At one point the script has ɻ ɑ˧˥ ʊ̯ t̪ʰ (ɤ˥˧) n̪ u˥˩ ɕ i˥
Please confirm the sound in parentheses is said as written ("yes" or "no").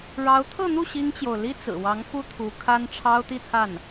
yes